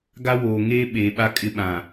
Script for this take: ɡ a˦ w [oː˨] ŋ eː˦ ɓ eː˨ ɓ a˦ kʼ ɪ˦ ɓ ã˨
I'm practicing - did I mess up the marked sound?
no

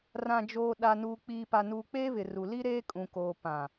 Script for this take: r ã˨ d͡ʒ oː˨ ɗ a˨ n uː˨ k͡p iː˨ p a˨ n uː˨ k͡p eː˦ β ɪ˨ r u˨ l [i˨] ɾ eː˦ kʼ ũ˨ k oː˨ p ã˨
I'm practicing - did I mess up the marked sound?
yes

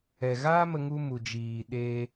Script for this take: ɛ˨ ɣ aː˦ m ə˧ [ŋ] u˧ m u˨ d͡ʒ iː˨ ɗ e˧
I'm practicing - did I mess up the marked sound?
no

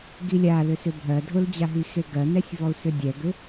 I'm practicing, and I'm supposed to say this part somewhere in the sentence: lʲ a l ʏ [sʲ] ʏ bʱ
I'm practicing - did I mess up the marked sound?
yes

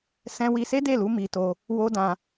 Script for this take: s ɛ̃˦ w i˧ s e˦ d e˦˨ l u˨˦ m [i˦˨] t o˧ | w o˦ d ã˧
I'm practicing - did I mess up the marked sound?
yes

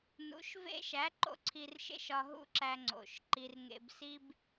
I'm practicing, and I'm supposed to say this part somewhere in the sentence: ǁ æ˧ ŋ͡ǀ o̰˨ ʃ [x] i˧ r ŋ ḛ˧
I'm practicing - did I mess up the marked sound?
yes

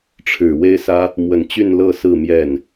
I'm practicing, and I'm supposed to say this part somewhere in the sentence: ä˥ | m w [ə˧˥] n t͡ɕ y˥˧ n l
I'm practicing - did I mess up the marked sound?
yes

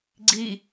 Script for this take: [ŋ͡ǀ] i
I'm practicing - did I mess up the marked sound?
yes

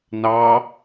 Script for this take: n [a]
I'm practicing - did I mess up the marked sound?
yes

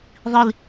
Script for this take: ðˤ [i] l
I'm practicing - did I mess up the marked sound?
no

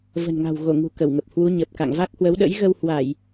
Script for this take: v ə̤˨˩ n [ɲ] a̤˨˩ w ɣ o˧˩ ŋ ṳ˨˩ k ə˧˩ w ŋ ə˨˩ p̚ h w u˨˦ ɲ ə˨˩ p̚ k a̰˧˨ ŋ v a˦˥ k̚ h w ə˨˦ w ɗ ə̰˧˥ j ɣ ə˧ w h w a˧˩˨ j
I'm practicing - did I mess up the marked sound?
yes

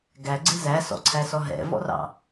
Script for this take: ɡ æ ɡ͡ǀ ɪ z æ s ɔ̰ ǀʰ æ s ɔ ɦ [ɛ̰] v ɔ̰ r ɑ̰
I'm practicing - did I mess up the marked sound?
no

